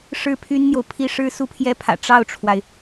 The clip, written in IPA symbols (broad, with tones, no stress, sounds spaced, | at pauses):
ʂ ɻ̩˥˩ pʰ y˥ n n̪ j o˨ ʊ̯ pʰ i˥ ʂ ɻ̩˥ s u˥˩ pʰ j ɛ˥ pʰ ä̰˨˩ ʈ͡ʂ ɑ˥˩ ʊ̯ ʈ͡ʂʰ w a˩ ɪ̯